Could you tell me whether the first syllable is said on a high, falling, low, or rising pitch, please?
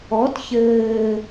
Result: rising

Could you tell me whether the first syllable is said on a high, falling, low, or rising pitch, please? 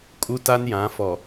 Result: high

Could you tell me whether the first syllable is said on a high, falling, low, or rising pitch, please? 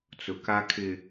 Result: low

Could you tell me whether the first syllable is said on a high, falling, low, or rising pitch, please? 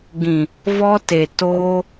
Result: low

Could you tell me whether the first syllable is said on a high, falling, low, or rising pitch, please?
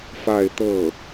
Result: falling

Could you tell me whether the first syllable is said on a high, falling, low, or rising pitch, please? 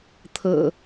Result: low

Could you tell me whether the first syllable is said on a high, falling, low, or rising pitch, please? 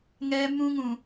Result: high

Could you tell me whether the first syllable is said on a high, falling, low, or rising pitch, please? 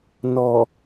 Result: low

